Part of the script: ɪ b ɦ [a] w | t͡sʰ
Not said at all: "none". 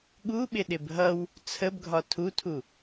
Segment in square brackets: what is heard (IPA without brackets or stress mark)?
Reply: ʌ